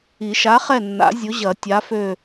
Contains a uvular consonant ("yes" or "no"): yes